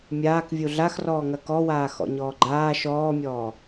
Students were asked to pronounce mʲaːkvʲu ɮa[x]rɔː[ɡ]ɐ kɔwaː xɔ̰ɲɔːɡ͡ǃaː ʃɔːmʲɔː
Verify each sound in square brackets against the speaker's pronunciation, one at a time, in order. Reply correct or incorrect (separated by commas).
correct, incorrect